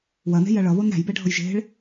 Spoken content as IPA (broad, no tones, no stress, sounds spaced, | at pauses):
w ɐ n e̤ j ɐ ɭ ʌ β o n ɾ æ̤ j b ɛ ɖʱ ɤ j ʒ e̤ ɭ